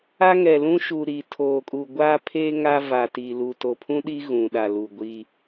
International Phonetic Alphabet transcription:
a˦ ŋ ɛ˨ l ũ˦ ʃ u˨ ɾ i˨ tʰ oː˨ kʼ u˨ ɡʷ aː˦ pʰ eː˦ ŋ a˦ v a˨ t i˨ l u˨ t o˨ pʰ ũ˦ ɗ i˦ ɣ ũ˨ ɗ a˨ l u˨ ɡʷ iː˦

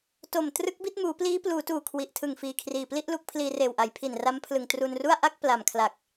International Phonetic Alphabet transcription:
t o˨˩ m t r ɯ˦˥ k̚ b i˦˥ t̚ m uː˩˦ p l iː˦˥ p l uː˩˦ t uː˨˩ kʰ w i˨˩ ʔ tʰ ɯ˨˩ ŋ f iː˨˩ kʰ r iː˨˩ p l i˥˩ ʔ l u˦˥ k̚ pʰ l iː˧ r eː˨˩ w ʔ a˩˦ j pʰ i˨˩ n r a˦˥ m pʰ l ɯ˨˩ ŋ t r u˧ n r u˥˩ a̯ ʔ a˥˩ k̚ p l a˨˩ m kʰ l a˨˩ k̚

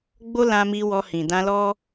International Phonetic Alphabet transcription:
ɡ͡b o˦ l ã˦ m i˧ w ɔ˧ h ĩ˨ d ã˧ l ɔ˦

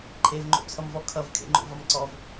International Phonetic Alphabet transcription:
ǃʰ e v ŋ͡ǃ o̰ t͡sʰ ʌ m v ɔ kʰ ʌ v kʰ ḛ ŋ͡ǃ o̰ v ʌ m ǀ ɔ v

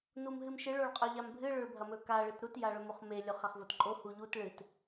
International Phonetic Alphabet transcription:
n u m ɦ ɨ m ʃ ɨ ɭ o ɭ qʼ ɵ ʎ a m bʱ ɨ ɭ ɵ ɭ bʱ ɐ m ɵ k a ɭ ɨ t ɾ u t j a ɭ ɵ m o χ m e lʲ o χ a χ v o t ǃʼ o h u ʎ u t ɭ ɨ t

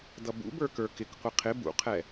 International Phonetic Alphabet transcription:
d ʌ b ṵ b ə˞ k ə˞ k ɪ k qʷ ɪ qʰ ɪ b ṵ qʰ ɛ

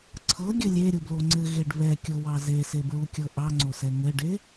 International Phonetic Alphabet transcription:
ǀʰ ɤ ɡʲ ɘ lʲ e ɾʲ u b l o ŋ͡ǀ ɘ ɣ e ɖ β ɛ kʲ ɤ w ɑ z e s e b ɹ u kʲ ɤ ʔ ɑ ŋ͡ǀ o s ɛ ŋ ɘ ɖ e

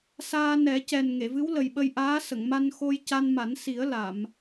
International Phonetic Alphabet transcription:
s aː˧ n ɛ˨˩˦ c ɛ˨˩ n ŋ e˨˩˨ v ɨ˧˥ w l ə˨˩ j ɓ ə˧ j ʔ aː˧˥ s ə˨˩˨ ŋ m a˧ n x o˧ j c a˧ n m a˨˩˦ n s i˨˩˦ ə̯ l a˨˩˨ m

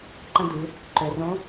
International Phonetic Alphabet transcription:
ǃ ə̃˧ d̪ ɨ˩˧ | ǃ ø˩ r õ˧˥

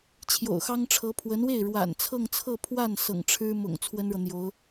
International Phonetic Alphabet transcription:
t͡ɕʰ j o̰˨˩ ʊ̯ x ɑ˥ ŋ ʈ͡ʂʰ ɤ˧˥ pʰ w ə˧˥ n w e˥˩ ɪ̯ ɻ w a̰˨˩ n t͡sʰ ɤ˥˧ ŋ t͡sʰ ɤ˥˧ pʰ w a˥˩ n s ɤ̰˨˩ ŋ ʈ͡ʂʰ ɻ̩˥ m ʊ̰˨˩ ŋ t͡sʰ w ə˥ n ɻ ɤ˨ n̪ j o˧˥ ʊ̯

